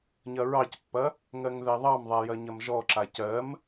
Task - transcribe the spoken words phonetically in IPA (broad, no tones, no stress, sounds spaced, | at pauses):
ɲ ɐ ɹ ɑ c pː ɐ | ŋ ɜ ŋ ð ɛ ðˤ ɑ m ðˤ a j ɐ ɲ ɐ m ʒ ɔ ǁ a c ɜ m